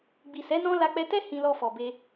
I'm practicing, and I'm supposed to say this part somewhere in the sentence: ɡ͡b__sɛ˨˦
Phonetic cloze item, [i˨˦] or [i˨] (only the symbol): i˨